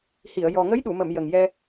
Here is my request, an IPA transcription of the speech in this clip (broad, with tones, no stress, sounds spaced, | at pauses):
h i˨˩˨ ə̯ j ɔ˨˩ ŋ ə˧˥ j ɗ u˨˩˨ m ə˨˩˨ m j ə˨˩ ŋ j ɛ˧